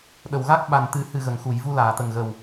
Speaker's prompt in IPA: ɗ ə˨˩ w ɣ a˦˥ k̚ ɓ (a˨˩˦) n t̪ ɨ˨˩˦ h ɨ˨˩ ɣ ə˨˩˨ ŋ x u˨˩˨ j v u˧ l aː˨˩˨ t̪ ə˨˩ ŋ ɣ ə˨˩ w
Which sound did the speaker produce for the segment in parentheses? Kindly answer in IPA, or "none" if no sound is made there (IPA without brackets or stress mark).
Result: a˨˩